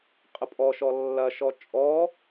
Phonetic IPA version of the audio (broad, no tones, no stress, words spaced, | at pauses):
qʼəpʼɔʃɔ lːɐʃɔ t͡ʃʼɔ